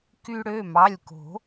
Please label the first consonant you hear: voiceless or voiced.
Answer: voiceless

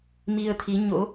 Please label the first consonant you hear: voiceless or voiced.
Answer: voiced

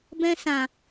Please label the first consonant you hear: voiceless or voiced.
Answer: voiced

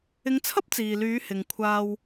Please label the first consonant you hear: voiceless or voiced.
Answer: voiced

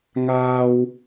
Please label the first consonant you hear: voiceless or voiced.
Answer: voiced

